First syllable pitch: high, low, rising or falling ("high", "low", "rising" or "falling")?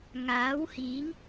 rising